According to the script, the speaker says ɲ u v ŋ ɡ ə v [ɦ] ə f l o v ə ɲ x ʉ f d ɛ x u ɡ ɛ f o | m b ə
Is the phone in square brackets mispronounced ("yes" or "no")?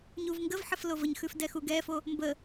yes